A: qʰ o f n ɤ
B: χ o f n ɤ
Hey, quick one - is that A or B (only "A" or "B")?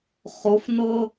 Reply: B